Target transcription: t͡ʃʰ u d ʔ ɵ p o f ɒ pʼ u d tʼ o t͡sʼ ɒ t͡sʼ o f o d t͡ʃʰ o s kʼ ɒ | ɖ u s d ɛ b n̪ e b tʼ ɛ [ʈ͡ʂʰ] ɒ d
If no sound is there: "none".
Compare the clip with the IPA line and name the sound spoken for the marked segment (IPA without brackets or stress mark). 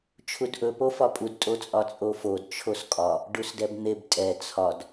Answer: t͡sʰ